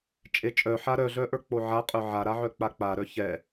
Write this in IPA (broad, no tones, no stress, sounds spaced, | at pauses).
t͡ʃʼ e t͡ʃʼ œ ħ a ɾ œ ɮ œ ʔ ə˞ k͡p o ʕ a qʼ ə˞ ʕ a ɾ a ʕ œ k͡p a k͡p a ɾ œ ç ɛ